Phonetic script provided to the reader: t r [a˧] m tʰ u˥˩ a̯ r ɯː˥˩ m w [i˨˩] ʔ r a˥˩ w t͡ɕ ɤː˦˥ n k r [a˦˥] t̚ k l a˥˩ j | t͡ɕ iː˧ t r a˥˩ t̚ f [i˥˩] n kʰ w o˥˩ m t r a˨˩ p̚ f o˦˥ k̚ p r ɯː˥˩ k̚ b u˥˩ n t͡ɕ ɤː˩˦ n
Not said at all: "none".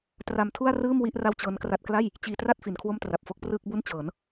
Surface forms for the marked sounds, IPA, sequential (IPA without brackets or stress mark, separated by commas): a˧, i˥˩, a˦˥, i˩˦